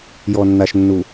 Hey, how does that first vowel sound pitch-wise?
low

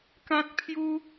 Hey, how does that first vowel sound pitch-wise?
high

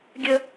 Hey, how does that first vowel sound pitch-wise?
high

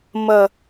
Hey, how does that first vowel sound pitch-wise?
low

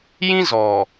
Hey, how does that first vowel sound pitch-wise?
high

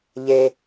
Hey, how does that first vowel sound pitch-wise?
low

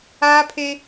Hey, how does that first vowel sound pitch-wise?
high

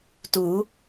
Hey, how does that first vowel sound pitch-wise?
rising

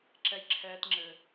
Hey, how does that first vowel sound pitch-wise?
high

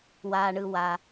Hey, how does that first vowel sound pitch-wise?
low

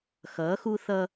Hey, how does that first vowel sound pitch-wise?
rising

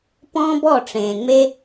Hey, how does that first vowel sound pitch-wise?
high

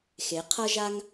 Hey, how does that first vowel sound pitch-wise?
rising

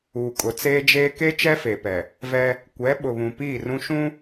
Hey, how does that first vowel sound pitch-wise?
low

